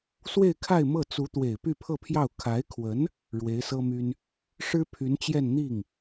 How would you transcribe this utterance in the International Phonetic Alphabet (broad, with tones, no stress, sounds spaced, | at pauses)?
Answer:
s w e˥˧ ɪ̯ kʰ a˥˧ ɪ̯ m ɤ˥˩ t͡s u˧˥ t̪ w e˨˩ ɪ̯ p y˥˧ pʰ ɤ˥˧ pʰ j ɑ˥˩ ʊ̯ kʰ a˧˥ ɪ̯ kʰ w ə˧˥ n | ɻ w e˧˥ ɪ̯ s ɤ˥ m y˥ n | ʂ ɻ̩˥ pʰ y˧˥ n t͡ɕ j ɛ˥˧ n n̪ i˥˩ ŋ